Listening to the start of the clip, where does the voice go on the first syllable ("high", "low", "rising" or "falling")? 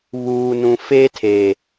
low